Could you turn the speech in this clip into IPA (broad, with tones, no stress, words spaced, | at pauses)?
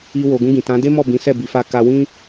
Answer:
i˧ wo˨ɡũ˧ɡĩ˨ tã˨˦ de˦mɔ˦˨bĩ˨˦sɛ˦˨ bi˨˦fa˦ka˦ wĩ˦